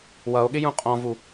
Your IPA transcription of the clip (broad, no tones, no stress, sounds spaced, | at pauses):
w ʌ o̯ ɠ ɪ j ũ qʼ ɔ̃ v u